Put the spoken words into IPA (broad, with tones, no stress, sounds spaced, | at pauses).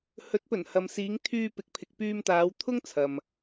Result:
h ɵ˨˥ t̚ p ɵ˨˩ n h ɐ˨ m s iː˨˧ ŋ t̪ʰ yː˧ p ɪ˨ k̚ pʰ ɪ˨ k̚ p yː˧ m t̪ aː˨˧ w t̪ʰ ʊ˥ ŋ t͡sʰ ɐ˨ m